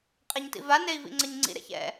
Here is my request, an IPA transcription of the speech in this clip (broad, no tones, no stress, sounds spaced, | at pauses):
qʼ ɛ ɲ t ḭ v a n e i̯ v ḭ ŋ͡ǀ ʌ ɲ ŋ͡ǀ ḭ ɾ ɛ̰ ç ɛ̰